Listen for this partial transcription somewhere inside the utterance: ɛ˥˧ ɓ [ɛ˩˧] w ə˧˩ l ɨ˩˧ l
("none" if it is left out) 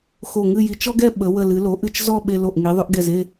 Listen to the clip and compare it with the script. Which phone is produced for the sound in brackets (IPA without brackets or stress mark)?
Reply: ə˩˧